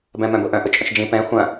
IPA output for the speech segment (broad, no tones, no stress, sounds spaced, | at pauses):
b ɛ̃ m œ̃ b ʊ ʔ œ̃ ʔ ʊ t͡ʃʼ œ̃ ʃ d͡ʒ ĩ p ɛ̃ xʷ ɐ̃